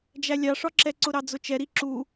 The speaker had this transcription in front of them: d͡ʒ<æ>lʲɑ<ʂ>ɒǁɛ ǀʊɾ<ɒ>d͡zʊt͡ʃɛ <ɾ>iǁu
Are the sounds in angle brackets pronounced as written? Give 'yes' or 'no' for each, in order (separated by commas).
yes, yes, no, yes